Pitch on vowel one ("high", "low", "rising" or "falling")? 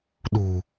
low